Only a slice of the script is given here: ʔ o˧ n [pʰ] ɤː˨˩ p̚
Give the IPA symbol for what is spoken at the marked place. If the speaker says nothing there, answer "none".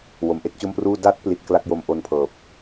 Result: pʰ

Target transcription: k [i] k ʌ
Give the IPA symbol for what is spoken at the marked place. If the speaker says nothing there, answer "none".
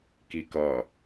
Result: i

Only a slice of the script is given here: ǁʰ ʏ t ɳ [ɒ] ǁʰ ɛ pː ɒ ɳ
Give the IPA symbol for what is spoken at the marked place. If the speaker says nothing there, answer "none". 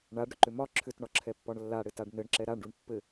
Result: ɒ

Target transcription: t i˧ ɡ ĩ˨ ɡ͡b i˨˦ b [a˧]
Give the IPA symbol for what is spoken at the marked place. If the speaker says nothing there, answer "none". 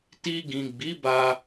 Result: a˧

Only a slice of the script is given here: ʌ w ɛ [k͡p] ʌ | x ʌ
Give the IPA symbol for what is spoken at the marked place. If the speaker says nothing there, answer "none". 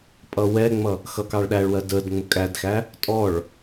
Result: ŋ͡m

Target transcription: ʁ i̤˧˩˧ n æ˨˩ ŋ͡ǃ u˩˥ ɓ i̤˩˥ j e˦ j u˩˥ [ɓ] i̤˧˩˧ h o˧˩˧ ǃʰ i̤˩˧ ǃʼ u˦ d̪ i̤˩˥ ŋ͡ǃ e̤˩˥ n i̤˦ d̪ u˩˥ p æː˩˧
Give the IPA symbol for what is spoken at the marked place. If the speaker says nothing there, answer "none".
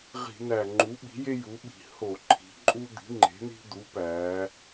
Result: ɓ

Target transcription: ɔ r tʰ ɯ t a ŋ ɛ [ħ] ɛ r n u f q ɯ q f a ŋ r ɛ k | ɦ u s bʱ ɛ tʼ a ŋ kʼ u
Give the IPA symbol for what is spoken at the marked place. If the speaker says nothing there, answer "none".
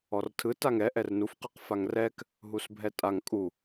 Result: ʔ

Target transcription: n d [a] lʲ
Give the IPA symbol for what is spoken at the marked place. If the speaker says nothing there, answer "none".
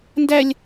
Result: æ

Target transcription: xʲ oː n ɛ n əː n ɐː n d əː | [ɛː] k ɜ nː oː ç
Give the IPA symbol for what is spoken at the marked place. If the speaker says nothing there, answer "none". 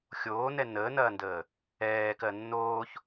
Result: ɛː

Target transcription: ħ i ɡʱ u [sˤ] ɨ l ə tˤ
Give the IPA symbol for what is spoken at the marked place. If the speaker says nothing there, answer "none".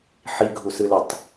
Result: s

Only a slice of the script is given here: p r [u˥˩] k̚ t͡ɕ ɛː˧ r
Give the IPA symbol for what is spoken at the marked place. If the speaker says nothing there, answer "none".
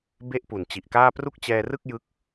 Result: u˥˩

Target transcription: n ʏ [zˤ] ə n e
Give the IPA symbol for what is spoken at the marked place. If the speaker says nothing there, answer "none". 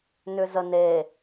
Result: z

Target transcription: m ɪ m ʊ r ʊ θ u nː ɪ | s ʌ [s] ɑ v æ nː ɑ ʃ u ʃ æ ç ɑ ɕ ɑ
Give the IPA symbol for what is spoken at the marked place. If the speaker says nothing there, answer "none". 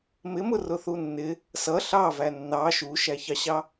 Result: ɬ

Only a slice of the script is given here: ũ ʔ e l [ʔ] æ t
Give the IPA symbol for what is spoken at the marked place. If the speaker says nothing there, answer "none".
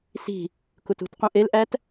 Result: ʔ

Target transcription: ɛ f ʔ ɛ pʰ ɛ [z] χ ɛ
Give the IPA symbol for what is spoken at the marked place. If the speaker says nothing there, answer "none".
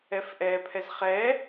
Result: z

